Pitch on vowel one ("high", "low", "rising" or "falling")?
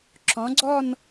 rising